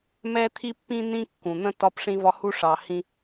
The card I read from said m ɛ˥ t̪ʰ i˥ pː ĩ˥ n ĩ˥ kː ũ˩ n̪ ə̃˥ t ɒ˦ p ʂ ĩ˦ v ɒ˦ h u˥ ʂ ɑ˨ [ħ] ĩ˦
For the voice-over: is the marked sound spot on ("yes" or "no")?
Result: no